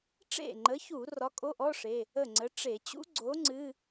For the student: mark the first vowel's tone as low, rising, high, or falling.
falling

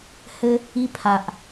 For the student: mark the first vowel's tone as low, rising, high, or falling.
high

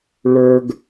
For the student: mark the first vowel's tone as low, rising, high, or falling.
high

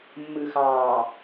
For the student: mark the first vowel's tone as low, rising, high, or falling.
low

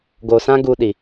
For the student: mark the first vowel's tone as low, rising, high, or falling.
low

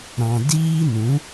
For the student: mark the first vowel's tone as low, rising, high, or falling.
low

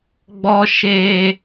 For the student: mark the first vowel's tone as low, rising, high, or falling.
high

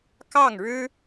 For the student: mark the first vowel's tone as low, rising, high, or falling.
falling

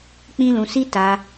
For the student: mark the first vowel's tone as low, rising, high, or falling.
high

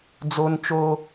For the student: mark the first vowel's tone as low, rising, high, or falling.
high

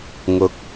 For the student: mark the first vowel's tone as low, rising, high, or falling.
rising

